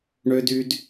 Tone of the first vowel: high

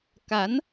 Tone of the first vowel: rising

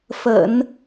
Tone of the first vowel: low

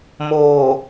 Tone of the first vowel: low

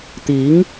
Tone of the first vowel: rising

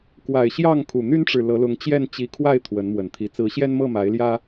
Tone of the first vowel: low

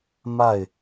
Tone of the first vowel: falling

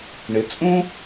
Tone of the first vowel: rising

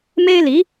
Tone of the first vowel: high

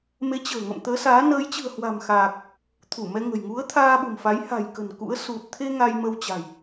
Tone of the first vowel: rising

